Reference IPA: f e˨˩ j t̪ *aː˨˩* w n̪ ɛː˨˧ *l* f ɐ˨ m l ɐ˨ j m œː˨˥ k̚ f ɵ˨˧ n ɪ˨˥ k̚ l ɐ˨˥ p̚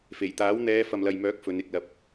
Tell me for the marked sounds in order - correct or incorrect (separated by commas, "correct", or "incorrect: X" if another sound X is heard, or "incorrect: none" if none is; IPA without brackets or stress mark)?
incorrect: aː˨˥, incorrect: none